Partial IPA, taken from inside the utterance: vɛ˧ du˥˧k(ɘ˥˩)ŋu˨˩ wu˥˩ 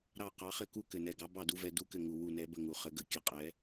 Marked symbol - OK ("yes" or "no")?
yes